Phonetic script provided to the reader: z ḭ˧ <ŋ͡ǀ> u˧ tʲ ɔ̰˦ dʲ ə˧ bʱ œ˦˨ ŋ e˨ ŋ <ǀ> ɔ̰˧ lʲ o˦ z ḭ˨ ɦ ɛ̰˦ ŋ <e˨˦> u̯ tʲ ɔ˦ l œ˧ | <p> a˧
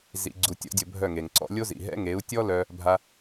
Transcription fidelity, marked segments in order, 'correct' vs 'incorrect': incorrect: ɡ͡ǀ, correct, correct, incorrect: bʱ

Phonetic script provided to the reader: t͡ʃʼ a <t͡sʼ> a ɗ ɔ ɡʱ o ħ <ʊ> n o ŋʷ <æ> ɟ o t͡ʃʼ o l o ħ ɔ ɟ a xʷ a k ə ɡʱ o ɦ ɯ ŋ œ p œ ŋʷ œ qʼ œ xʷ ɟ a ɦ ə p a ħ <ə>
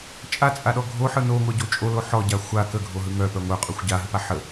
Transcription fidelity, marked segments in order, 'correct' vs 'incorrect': correct, incorrect: ɯ, incorrect: œ, correct

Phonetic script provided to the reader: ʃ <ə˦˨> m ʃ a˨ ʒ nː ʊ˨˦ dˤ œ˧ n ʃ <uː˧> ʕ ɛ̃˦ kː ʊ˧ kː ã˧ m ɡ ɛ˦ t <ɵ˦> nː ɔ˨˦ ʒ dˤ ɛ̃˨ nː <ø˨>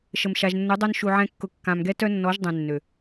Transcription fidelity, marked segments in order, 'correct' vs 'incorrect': incorrect: ə˨, incorrect: u˧, incorrect: œ˦, correct

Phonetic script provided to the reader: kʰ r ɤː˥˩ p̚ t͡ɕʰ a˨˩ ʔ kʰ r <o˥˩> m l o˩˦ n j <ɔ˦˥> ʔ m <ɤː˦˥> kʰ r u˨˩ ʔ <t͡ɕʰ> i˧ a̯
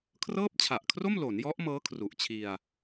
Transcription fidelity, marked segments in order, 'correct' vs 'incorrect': correct, correct, correct, correct

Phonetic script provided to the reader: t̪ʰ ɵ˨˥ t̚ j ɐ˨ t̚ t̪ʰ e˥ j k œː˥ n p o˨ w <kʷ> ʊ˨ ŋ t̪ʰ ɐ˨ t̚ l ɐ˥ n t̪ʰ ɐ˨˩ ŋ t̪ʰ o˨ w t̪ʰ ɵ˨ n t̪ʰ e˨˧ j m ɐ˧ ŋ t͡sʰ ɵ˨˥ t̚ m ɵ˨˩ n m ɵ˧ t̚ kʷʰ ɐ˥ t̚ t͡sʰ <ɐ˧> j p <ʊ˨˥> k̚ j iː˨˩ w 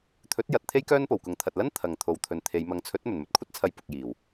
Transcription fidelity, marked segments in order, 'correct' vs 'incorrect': incorrect: k, correct, incorrect: ʊ˨

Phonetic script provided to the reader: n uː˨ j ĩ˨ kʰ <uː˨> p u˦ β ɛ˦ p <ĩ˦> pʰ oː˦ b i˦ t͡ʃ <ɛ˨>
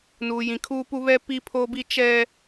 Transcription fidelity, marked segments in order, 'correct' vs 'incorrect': incorrect: uː˦, incorrect: i˦, incorrect: ɛ˦

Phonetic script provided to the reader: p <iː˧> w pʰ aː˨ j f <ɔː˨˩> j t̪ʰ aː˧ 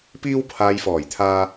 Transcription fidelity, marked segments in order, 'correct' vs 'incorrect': correct, correct

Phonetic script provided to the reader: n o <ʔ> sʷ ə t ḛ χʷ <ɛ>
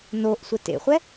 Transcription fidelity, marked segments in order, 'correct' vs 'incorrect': correct, correct

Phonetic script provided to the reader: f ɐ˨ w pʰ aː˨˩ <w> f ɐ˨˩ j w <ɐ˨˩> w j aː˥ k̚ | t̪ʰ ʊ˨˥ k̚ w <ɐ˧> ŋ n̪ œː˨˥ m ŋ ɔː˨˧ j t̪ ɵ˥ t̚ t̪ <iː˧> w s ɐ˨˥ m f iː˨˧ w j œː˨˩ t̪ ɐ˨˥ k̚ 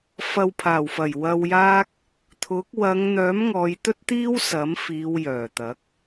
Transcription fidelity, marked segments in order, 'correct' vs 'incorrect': correct, incorrect: ɐ˧, incorrect: ɐ˨˧, incorrect: iː˥

